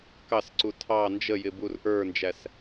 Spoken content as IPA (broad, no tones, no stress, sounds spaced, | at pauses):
k ɑ s ǀ u tʰ ɑ n d͡ʒ ə j ɪ b u r ʔ ə˞ n d͡ʒ æ s